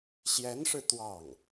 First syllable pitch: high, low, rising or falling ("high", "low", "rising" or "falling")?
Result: rising